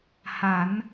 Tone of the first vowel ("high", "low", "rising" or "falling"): rising